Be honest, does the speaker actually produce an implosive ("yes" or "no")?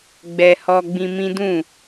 no